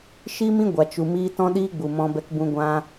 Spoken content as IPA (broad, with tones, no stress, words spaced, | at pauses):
ʃi˦mĩ˦ ɡʷa˨t͡ʃu˨ miː˦ tɔ̃˦ɗiː˦ɡ͡bu˨ mɔ̃˧ bɛ˧kbũ˧ ɡʷã˦